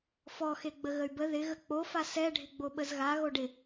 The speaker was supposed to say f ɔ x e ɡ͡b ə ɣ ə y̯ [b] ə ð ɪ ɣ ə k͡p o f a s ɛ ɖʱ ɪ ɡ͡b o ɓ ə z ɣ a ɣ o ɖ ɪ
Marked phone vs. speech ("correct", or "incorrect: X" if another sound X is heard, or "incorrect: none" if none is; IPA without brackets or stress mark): correct